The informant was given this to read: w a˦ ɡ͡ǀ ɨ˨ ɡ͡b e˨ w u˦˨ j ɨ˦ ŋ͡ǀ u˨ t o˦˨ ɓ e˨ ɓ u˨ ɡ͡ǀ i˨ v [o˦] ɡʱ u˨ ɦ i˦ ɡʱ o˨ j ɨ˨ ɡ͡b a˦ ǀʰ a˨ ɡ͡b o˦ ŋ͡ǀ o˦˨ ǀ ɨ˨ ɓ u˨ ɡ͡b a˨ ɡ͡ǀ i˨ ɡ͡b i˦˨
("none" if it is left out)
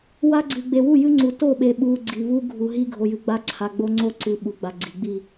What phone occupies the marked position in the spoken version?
u˦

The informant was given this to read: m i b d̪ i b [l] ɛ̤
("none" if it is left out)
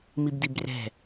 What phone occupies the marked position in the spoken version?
r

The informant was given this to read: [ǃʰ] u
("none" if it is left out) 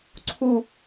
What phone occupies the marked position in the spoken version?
ǀʰ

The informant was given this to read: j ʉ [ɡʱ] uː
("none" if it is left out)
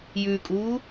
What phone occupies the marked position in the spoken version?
kʼ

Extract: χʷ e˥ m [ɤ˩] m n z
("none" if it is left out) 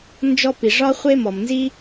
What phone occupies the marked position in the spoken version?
ɔ˩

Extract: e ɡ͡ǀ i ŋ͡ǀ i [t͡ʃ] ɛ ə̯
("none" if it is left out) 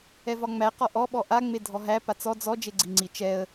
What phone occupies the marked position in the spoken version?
t͡ʃ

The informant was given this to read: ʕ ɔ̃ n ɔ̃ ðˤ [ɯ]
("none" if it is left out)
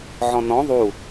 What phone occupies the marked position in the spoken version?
u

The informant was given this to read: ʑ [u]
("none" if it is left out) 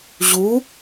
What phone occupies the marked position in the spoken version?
u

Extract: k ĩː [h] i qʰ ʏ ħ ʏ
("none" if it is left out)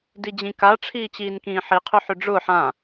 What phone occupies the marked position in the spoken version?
ħ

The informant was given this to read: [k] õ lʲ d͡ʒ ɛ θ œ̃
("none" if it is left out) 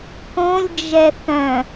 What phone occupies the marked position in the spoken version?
k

